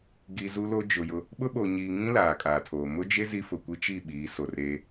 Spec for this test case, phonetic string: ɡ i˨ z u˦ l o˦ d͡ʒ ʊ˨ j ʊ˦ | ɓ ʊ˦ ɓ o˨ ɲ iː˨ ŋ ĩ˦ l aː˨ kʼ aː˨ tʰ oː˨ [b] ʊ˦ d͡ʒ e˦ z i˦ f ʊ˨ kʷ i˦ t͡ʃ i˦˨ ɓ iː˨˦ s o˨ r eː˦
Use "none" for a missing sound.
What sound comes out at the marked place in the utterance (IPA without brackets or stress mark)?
m